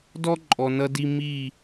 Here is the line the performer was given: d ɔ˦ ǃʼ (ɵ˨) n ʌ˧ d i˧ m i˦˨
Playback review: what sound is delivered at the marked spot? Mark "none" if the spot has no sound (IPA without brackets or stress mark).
ɔ˨